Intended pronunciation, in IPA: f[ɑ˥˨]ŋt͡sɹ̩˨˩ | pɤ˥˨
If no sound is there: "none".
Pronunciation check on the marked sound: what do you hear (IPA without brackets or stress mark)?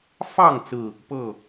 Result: ɑ˥˨